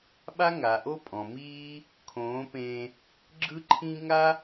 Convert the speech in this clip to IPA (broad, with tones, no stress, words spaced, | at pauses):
ɓa˦ŋa˨ʔo˦pʼɔ̃˨ miː˦ | kʰõː˨˦pẽː˧ | ɡ͡ǁɯ˦ǃʰĩ˦ ŋa˦